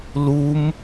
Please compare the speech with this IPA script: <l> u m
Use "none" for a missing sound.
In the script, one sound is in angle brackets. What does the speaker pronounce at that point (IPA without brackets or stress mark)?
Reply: l